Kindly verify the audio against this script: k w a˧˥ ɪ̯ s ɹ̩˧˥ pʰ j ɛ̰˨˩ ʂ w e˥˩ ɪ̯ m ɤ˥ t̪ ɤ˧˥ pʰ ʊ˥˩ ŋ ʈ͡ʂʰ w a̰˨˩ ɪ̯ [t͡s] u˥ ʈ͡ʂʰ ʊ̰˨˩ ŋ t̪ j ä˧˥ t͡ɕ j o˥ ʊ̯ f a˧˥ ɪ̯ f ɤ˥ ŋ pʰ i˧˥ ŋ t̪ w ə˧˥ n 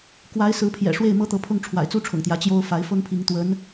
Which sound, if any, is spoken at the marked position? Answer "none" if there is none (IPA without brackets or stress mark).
t͡s